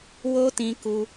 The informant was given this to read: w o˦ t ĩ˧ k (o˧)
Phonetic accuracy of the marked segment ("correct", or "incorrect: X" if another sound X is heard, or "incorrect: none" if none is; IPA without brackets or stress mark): incorrect: u˧